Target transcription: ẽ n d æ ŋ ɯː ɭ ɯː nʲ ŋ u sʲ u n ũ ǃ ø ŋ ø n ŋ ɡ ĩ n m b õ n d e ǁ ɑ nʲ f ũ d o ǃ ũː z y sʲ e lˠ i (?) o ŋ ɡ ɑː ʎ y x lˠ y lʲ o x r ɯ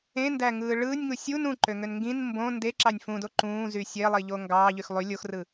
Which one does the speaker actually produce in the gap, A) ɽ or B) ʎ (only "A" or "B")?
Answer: B